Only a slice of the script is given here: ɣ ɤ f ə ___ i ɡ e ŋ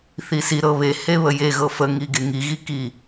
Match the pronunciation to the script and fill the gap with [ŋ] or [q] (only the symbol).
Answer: ŋ